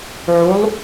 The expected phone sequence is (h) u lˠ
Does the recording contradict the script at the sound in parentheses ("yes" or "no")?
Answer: yes